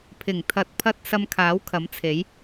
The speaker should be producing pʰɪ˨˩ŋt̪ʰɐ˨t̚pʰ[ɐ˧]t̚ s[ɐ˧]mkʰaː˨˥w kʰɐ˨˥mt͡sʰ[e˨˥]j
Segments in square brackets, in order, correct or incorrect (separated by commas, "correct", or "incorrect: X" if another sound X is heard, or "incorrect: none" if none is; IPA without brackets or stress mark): correct, correct, correct